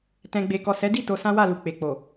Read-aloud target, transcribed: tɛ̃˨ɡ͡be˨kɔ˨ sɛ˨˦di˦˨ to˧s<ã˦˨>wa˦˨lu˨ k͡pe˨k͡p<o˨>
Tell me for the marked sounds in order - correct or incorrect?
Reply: incorrect, correct

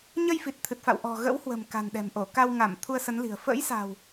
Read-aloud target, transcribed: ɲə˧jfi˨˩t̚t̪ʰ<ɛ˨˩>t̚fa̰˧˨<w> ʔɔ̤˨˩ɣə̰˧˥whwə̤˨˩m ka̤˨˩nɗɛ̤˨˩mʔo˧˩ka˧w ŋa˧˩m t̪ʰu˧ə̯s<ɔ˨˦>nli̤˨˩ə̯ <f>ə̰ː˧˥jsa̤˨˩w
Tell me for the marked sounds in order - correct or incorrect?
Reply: incorrect, correct, incorrect, correct

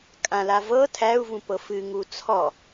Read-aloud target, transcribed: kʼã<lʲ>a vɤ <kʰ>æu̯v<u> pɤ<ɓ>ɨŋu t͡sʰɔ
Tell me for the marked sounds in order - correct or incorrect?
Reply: incorrect, incorrect, incorrect, incorrect

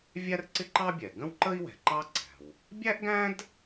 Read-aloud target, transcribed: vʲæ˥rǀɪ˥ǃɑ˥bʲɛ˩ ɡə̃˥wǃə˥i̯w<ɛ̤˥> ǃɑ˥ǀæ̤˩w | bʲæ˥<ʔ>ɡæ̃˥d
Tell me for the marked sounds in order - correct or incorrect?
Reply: incorrect, correct

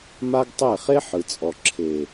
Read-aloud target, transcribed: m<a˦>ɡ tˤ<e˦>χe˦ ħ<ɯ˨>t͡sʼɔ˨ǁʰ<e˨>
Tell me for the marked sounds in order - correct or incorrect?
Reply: correct, incorrect, correct, correct

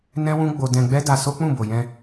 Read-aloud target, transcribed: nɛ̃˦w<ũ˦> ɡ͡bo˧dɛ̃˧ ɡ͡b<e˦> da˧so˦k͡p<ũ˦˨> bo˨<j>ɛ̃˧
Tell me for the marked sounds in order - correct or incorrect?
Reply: correct, incorrect, correct, correct

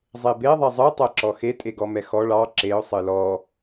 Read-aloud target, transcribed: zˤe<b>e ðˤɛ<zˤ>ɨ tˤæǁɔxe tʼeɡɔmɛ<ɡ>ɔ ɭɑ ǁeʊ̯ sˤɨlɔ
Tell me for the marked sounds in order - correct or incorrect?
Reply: correct, correct, incorrect

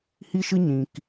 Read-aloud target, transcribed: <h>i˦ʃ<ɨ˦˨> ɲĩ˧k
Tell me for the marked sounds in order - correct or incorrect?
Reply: correct, incorrect

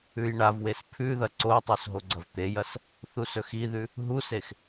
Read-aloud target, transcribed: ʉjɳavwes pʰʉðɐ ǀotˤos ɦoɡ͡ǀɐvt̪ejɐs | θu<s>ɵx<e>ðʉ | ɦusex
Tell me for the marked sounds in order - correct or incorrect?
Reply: correct, incorrect

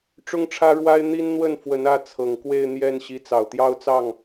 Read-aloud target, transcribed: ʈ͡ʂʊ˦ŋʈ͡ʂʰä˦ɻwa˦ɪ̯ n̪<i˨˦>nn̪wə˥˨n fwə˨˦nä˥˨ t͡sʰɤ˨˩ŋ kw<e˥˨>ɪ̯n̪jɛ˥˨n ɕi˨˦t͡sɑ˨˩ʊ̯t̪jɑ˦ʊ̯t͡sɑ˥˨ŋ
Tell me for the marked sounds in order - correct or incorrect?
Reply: incorrect, correct

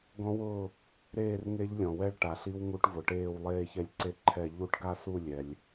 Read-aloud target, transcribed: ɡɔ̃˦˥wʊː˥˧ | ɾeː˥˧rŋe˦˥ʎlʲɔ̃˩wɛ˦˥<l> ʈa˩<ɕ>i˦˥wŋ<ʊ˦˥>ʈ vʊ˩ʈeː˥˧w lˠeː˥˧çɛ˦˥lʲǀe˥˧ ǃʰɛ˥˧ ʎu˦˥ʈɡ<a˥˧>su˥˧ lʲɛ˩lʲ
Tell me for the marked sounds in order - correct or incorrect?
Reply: incorrect, incorrect, incorrect, correct

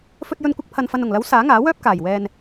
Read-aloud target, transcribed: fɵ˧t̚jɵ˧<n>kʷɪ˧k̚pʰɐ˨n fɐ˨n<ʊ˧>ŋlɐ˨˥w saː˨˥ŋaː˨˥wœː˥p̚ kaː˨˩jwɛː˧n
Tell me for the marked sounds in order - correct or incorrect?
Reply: correct, incorrect

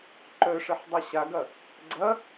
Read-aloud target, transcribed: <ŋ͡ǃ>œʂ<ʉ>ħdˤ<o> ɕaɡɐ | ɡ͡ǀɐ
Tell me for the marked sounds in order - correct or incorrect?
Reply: incorrect, incorrect, correct

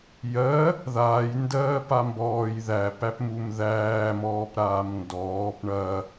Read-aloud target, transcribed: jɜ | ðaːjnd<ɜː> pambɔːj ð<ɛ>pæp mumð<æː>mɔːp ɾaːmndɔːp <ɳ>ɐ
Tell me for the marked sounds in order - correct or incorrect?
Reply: correct, incorrect, correct, correct

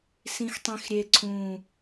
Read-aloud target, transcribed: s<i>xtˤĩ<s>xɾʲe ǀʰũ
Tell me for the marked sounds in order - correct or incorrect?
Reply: incorrect, incorrect

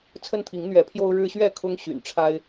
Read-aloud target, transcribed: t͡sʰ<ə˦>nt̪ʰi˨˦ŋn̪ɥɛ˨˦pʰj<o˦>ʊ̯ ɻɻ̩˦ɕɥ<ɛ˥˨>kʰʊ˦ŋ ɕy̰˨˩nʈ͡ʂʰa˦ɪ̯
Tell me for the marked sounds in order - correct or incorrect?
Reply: correct, correct, correct

